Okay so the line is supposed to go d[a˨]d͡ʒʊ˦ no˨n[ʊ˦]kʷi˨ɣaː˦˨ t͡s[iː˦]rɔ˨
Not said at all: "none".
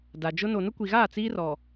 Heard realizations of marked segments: a˨, ʊ˦, iː˦

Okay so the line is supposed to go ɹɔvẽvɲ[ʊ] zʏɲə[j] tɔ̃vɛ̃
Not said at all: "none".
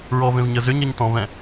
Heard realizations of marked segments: ə, ɲ

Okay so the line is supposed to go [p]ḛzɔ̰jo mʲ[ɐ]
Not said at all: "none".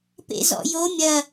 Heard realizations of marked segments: p, ɐ

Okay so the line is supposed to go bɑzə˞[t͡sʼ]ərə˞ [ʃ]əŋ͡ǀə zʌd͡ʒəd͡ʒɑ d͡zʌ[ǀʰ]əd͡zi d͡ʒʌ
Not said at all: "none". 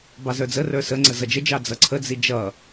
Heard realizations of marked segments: d͡z, s, ǀʰ

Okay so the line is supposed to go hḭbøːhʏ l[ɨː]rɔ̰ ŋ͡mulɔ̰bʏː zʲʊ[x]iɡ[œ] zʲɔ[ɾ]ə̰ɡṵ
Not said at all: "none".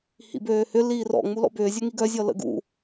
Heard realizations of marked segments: iː, ŋ, œ, l

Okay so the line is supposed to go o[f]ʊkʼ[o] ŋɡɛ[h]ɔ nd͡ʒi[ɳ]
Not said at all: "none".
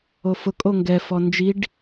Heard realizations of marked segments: f, o, f, ɖ

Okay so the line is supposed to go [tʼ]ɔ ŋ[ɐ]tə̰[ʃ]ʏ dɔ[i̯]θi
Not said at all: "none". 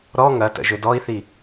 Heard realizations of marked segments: ɾ, ɐ, ʒ, i̯

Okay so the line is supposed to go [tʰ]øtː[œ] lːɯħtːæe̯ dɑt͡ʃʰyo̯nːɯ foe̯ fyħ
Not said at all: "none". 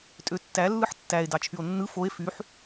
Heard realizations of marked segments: tʼ, æ

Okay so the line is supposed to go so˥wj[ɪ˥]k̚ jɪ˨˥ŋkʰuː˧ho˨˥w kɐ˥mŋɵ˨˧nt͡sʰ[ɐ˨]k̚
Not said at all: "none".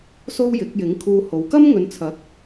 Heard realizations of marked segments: ɪ˨˥, ɐ˨˥

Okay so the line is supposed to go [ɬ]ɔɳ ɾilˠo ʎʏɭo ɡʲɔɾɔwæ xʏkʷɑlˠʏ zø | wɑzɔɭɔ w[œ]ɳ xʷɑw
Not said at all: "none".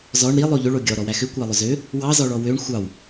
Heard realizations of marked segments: z, ø

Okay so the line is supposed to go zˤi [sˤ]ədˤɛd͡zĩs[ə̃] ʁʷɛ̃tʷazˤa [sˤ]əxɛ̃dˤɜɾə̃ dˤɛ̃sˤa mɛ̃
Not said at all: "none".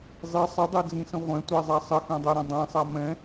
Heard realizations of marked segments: sˤ, ə̃, sˤ

